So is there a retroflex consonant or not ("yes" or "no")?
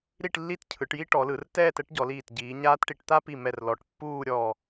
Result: yes